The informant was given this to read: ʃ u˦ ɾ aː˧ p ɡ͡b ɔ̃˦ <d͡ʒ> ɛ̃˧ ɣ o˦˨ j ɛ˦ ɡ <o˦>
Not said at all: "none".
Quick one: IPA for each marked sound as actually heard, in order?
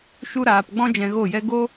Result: d͡ʒ, o˦

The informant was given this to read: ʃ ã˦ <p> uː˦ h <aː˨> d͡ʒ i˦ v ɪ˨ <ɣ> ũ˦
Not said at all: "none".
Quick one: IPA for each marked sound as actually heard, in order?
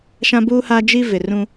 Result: b, aː˦, r

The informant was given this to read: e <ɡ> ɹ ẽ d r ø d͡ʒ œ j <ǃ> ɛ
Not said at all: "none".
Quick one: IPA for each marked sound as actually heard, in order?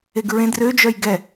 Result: ɡ, ɡ

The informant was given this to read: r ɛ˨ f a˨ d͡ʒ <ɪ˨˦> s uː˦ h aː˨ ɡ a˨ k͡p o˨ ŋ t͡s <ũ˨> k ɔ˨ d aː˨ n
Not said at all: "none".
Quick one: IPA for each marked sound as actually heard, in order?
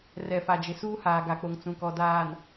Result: ɪ˨, ũ˨

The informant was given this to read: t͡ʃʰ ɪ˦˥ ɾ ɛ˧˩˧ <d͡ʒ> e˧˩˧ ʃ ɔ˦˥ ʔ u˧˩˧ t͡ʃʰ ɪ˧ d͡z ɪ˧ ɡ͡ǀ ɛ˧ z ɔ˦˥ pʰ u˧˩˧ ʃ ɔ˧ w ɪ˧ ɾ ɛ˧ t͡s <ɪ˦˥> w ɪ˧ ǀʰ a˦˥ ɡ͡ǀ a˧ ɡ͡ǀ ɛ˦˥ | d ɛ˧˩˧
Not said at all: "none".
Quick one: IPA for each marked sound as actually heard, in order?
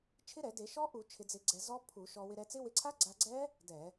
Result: d, ɪ˦˥

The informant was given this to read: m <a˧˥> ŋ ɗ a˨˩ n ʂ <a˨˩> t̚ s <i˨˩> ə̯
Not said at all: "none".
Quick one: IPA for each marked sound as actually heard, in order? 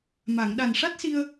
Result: a˨˩˨, a˦˥, i˧

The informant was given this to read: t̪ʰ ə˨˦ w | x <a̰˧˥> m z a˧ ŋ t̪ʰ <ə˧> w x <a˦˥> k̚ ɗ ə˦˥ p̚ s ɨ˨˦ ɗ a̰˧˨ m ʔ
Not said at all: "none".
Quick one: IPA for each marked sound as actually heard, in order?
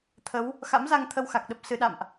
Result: a̰˧˥, ə˧, a˨˩

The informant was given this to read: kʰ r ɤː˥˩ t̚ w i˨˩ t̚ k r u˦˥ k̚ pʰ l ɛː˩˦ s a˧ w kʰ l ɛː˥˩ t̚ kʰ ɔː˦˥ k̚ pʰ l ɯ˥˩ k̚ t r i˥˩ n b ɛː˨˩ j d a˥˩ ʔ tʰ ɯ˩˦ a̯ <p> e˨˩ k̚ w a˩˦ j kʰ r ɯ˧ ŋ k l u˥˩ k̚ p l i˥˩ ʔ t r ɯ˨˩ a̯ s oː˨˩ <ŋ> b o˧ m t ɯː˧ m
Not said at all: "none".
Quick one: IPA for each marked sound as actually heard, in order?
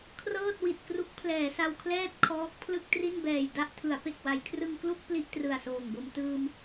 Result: p, ŋ

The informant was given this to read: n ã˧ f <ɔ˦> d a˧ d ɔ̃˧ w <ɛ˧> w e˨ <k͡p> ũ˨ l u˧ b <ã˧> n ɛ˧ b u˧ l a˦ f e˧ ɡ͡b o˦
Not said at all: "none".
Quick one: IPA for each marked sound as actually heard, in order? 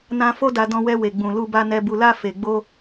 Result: o˦, ɛ˧, ɡ͡b, a˧

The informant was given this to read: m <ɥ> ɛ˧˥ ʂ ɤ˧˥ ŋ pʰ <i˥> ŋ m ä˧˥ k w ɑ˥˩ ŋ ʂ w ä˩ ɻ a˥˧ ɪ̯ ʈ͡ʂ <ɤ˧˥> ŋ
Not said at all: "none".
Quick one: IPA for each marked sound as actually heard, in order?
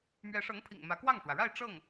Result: ɥ, ḭ˨˩, ɤ˥˩

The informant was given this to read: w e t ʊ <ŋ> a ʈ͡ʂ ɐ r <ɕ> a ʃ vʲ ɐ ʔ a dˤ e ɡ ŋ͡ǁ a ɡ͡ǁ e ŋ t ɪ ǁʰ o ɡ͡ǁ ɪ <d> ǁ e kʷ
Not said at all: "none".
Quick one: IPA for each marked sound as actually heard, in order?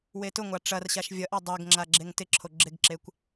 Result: ŋʷ, ɕ, ɡ

